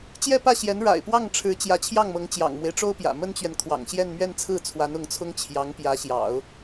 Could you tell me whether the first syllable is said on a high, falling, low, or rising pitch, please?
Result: falling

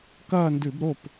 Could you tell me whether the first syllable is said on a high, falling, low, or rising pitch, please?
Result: falling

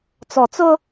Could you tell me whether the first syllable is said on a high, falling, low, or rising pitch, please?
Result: low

